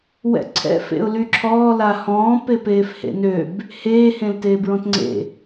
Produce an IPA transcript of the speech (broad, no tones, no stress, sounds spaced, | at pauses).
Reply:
w ɛ̰ ǀʰ ɛ̰ f ḛ ʊ̯ l y ǁʰ ɔː l a h ɔ̃ː p e p eː f h ḛ n ø b | h eː h ẽ l t eː b ɹ ɔ̃ t ŋ͡ǀ ḛ